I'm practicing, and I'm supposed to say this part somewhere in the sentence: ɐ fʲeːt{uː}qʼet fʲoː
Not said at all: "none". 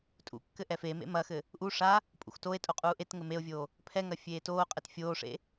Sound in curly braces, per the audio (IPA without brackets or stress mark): oː